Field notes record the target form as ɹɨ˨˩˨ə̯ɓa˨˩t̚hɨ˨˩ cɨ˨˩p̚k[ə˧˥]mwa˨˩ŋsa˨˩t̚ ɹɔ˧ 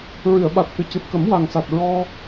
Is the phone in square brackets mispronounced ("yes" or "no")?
yes